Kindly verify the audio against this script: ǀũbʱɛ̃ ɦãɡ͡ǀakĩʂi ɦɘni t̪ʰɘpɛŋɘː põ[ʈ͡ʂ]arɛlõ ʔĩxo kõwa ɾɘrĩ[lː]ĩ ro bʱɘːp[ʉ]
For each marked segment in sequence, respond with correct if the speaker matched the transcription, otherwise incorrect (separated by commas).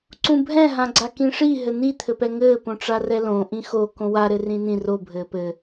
correct, incorrect, incorrect